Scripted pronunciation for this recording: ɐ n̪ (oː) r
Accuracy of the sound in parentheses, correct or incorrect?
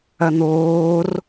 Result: correct